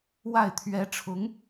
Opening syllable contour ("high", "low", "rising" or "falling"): falling